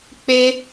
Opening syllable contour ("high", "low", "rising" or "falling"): high